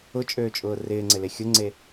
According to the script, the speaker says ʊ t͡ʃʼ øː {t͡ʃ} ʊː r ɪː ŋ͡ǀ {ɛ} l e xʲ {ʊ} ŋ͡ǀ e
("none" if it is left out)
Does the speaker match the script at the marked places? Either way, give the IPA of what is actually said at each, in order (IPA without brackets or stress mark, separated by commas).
t͡ʃʼ, ɪ, ʊ